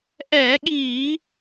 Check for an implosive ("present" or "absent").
present